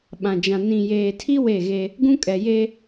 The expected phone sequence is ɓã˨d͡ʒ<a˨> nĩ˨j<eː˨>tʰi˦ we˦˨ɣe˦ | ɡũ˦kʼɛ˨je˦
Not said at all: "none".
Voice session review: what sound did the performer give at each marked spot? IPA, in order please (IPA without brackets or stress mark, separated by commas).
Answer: ã˨, eː˨